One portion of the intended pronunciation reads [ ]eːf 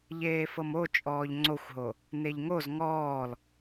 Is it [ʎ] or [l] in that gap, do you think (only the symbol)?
ʎ